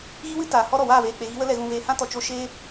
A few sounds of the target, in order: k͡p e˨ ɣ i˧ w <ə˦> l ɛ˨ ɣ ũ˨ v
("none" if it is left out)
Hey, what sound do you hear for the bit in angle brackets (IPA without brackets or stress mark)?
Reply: ə˦